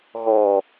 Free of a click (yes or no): yes